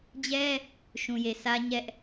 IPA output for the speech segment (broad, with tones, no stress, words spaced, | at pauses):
d͡ʑɛ˦ | ʃũ˨je˨sä˦ɲɛ˦ʔ